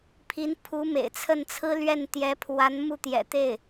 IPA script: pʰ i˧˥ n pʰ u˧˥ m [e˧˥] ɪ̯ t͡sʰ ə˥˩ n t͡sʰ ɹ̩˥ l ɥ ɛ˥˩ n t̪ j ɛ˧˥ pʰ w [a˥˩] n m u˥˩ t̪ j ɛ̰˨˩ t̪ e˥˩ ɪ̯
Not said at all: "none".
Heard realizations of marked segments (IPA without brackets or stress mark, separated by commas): ḛ˨˩, a˧˥